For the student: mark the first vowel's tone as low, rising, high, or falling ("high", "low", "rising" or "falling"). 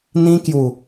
high